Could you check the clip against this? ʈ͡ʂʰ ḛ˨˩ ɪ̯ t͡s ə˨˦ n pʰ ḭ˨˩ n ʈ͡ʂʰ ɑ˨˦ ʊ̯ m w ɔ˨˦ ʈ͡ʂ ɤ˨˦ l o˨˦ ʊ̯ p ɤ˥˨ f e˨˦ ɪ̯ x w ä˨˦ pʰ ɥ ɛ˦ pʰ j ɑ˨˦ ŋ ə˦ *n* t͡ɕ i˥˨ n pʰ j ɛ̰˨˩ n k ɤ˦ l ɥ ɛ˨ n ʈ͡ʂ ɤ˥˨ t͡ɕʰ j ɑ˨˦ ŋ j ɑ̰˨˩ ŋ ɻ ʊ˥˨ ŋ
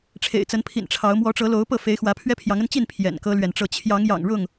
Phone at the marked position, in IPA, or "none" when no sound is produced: n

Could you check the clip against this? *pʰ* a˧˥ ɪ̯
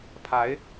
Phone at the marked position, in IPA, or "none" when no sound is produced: pʰ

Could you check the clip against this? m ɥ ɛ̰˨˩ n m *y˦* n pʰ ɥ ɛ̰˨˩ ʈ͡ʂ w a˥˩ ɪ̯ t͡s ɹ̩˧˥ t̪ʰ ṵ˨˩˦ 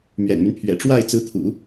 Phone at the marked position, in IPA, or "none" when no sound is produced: y˦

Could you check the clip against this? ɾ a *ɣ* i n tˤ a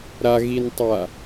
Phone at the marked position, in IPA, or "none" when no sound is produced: ɣ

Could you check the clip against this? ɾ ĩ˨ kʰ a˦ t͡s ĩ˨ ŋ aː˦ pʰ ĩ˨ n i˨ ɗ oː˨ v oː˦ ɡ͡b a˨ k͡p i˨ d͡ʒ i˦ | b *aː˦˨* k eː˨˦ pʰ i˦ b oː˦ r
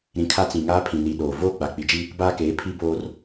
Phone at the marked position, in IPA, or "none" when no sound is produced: aː˦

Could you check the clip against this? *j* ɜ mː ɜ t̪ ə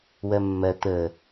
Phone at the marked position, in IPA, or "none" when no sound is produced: w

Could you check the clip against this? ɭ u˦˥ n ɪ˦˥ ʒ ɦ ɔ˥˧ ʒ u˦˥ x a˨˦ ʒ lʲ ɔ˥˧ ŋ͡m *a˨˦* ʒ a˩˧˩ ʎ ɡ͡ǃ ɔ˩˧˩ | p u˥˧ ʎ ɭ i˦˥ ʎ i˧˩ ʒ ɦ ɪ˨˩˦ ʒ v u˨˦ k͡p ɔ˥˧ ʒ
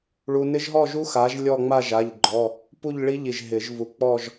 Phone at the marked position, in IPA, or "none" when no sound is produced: a˥˧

